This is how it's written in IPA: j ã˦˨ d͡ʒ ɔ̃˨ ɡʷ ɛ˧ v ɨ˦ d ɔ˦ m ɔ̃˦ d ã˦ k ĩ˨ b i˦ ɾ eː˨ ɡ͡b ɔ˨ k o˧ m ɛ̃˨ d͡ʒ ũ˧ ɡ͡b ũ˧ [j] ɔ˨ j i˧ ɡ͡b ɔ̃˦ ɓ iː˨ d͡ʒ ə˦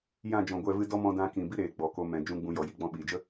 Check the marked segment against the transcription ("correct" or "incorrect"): correct